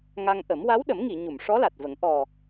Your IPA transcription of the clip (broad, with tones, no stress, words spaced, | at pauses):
ŋa˧ŋʔə˨˩˦m wa˧˥wɗə˨˩˦mŋi˨˩˨ ɲu˨˩˨m ʂɔ˧˥la˨˩t̚və˨˩˦ŋ ʔɔ˨˩